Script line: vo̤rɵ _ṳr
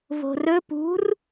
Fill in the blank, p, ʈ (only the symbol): p